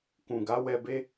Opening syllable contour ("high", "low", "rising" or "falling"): low